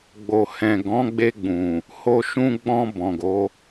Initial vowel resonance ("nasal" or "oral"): oral